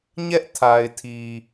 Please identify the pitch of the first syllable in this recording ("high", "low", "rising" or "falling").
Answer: high